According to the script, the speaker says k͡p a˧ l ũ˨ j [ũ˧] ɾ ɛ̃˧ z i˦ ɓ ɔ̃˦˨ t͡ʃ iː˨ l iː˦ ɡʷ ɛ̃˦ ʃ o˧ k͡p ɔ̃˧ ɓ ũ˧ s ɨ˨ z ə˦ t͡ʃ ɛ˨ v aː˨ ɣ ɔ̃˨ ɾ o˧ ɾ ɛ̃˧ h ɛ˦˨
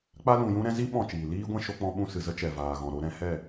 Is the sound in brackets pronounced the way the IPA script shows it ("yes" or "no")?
yes